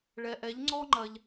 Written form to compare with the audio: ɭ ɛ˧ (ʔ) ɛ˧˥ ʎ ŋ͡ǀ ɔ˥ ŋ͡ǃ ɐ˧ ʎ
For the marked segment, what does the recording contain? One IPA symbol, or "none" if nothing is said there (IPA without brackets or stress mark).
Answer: ʔ